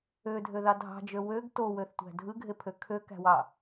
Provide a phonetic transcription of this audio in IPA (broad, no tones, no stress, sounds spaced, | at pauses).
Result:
ø dʱ ø ð ɑ dʱ ɑ̤ d͡ʒ ø w ø ɡ t o w ø θ tʷ æ̤ dʱ ɯ ɡʱ e pʰ ø kʰ ø k æ̤ w ɑ